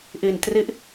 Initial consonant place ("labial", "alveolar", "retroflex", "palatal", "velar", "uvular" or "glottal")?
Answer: glottal